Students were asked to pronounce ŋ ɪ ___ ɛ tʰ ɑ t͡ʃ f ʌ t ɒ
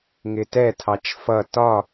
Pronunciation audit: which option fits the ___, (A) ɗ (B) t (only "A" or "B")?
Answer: B